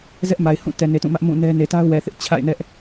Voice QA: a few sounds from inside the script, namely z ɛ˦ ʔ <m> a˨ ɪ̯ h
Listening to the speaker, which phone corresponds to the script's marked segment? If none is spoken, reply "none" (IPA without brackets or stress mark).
m